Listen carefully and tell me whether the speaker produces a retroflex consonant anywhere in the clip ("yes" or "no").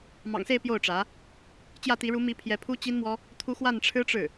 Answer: yes